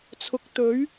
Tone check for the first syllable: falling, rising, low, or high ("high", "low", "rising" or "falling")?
rising